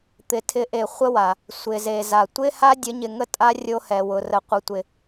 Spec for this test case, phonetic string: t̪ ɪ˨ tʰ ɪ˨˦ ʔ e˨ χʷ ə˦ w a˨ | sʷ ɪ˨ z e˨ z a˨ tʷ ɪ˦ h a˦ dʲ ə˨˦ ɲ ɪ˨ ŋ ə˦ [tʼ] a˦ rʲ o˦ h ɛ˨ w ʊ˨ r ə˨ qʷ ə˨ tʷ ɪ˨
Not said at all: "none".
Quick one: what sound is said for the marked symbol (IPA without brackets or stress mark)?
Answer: tʼ